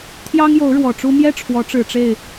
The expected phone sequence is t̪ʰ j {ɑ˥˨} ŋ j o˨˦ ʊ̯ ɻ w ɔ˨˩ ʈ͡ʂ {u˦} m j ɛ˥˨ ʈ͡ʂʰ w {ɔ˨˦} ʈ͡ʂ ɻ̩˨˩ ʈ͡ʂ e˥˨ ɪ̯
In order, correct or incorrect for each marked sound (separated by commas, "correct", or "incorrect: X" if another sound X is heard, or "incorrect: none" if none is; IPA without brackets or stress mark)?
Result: incorrect: ɑ˦, correct, correct